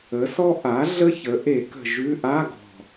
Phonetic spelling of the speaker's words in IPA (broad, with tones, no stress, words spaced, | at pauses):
ə˩˥sɔ˥ ʔa˩˥ ɮə˥çə˩˥ ʔe˨˩˦kə̤˨˩ ʒʉ˧˥˧ ʔa˧˥˧ɡɔ̤˨˩